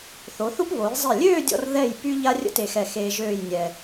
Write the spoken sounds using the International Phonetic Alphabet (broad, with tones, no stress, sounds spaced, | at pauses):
θ o˩˧ θ u˥ p β o˩˧ j zˤ e˧˩ lʲ øː˥˧ dʲ ɔ̰˧ r ð ɛ˧˩ j p y˥ ʎ a˥ rʲ ə̰˥ t e˧˩ x ɛ˧˩ x eː˧ ʒ øː˥˧ j nʲ ɛ˧